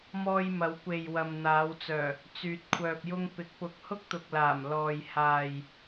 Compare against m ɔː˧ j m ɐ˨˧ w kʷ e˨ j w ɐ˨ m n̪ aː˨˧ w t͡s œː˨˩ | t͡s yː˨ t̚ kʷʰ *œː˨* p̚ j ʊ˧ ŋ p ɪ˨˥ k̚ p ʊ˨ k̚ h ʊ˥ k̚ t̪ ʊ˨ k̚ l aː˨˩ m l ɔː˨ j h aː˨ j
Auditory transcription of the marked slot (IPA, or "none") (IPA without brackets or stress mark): œː˨